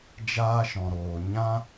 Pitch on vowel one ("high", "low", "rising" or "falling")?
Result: high